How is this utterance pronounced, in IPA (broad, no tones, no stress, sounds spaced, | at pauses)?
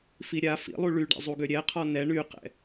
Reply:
f i ɾʲ a f ḭ lˠ u ɭ y ɖ ɛ̰ zˤ u ɡ ø ɾʲ ɛ qʰ ɔ n ɛ ɳ y q ɛ̰